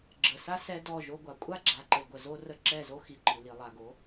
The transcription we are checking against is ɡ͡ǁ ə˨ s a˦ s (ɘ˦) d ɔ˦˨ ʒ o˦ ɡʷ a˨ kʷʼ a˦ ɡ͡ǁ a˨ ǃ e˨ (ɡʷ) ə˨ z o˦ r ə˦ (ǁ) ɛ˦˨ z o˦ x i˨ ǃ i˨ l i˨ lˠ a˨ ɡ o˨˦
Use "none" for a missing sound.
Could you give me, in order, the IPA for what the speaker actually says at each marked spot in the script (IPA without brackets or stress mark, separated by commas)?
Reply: ɛ˦, ɡʷ, ǁ